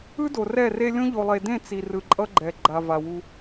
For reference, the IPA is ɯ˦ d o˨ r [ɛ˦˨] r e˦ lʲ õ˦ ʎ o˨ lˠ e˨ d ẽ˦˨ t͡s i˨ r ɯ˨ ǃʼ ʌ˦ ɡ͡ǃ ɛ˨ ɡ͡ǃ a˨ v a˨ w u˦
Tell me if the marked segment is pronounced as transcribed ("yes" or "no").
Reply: yes